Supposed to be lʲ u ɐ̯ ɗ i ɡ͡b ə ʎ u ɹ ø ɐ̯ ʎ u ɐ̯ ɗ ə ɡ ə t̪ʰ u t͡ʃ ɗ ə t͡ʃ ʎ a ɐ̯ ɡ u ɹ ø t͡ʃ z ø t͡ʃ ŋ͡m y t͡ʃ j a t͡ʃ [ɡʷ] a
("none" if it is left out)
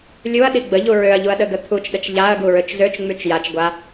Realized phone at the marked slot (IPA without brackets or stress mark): ɡʷ